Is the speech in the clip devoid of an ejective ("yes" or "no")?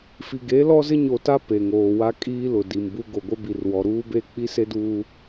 no